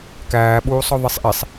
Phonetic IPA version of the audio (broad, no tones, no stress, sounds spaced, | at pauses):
k æː ɓ uː sˤ ɔ ðˤ i sˤ ʔ i sˤ